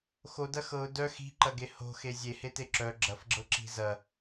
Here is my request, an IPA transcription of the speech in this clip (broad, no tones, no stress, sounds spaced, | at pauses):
x o d ɐ x ɤ ʊ̯ d œ x i̤ ǃ ɐ ɡ e h o̤ x e zʲ e h e t e ǁ œ ɡ͡ǁ ɐ f ɡ͡ǁ ɤ ǁ i̤ z ɐ